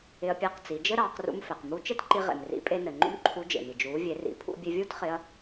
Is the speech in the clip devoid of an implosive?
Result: yes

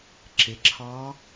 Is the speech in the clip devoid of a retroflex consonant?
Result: yes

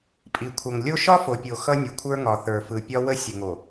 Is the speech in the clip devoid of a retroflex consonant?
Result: yes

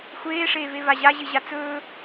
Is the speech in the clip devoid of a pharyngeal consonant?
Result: yes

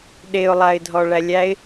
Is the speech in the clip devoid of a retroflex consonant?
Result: no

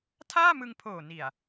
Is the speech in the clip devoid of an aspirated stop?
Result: no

